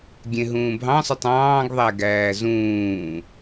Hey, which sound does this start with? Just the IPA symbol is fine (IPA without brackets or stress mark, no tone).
ɡʲ